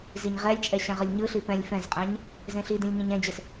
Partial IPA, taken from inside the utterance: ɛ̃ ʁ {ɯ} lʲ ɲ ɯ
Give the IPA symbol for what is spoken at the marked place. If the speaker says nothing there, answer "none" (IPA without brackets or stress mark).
ɯ